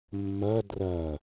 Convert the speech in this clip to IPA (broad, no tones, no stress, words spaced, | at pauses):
mːɐ drɐ